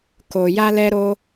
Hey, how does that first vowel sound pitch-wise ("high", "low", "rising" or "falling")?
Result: low